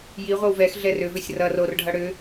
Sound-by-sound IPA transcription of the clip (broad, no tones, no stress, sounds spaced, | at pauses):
j i ʁʷ ʌ w v ɛ x ɮ ɛ r ʏ v ʏ sʲ r ʌ r o r ɖʱ ʌ ɽ ʏ